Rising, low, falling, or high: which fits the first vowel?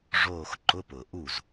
falling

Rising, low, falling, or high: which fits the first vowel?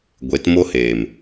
rising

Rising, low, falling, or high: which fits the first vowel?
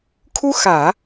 high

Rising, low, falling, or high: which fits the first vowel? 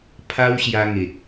high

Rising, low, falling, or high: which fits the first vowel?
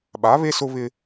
rising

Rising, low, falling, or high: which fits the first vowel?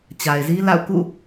low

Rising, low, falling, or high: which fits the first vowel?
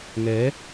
rising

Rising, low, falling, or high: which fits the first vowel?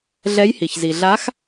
rising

